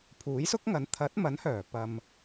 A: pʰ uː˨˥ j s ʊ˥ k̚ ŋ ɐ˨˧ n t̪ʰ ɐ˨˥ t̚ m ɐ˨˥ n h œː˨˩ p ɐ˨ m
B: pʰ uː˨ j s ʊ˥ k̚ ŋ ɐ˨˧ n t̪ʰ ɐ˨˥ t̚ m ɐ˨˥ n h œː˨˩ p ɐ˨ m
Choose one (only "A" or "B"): A